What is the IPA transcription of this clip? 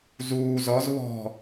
z uː z ɔ z β ɔ̤

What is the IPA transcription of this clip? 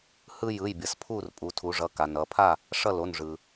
h ɯ˦ j ɯ˩˧˩ j bʲ ʌ˩˧ s pʰ u˥˨ r pʼ u˩˧ tʰ u˩˧ ʐ ʌ˩˧˩ k a˩ n ʌ˩˧ pʰ a˥˨ | ʂ ʌ˥˨ l o˩˧˩ n ʐ ɯ˩

